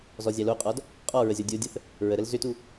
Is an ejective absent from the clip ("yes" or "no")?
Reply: no